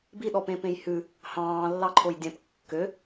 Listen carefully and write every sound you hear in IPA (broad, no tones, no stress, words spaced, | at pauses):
biɗɔpẽ pẽjhʉ | hɑ̃ː lːɑǃʰojdʲɛ̃p kːø